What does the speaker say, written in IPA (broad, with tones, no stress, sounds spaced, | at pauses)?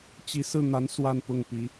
t͡ɕ i˧˥ s ɹ̩˥˩ n̪ a˧˥ n s w a˥˧ n p ʊ˥˩ ŋ p i˧˥